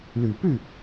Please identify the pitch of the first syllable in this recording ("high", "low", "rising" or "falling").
low